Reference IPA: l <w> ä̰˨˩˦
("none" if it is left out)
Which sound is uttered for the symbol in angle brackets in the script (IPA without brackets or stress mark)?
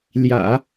j